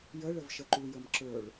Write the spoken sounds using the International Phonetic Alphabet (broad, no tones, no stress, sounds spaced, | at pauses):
j ə ɭ ə v ʃ ə ǃ u j ə m ǁ ə˞ ɭ